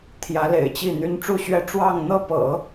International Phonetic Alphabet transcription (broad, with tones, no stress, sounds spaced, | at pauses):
t̪ʰ j ä˧˥ l ḛ˨˩ ɪ̯ t͡ɕ i˥˩ n̪ y˥ n ʈ͡ʂ u˥˩ ɕ ɥ ɛ˥ ʈ͡ʂ w ɑ˥˧ ŋ n̪ ɤ˥˩ p ɤ̰˨˩˦